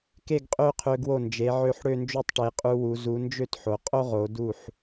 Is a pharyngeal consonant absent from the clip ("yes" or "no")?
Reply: no